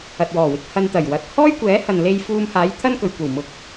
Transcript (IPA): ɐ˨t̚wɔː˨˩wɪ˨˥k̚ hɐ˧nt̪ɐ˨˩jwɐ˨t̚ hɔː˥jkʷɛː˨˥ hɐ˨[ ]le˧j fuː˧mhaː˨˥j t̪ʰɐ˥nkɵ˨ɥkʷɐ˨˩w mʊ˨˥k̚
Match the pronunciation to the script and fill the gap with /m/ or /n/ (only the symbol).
n